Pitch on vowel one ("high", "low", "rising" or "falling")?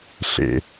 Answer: low